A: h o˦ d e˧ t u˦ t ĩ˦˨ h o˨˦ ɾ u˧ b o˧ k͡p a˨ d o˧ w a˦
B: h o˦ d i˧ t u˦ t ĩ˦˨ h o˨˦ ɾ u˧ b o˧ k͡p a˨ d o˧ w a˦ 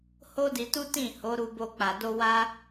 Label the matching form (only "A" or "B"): B